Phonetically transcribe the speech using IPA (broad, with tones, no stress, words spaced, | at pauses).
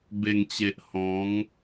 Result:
be˨˩ŋt͡ɕe˨ʔ hɔ̃˨˦ŋ